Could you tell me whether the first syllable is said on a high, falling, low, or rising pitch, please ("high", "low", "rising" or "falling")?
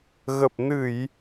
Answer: low